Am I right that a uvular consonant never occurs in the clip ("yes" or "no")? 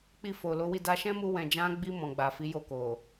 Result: yes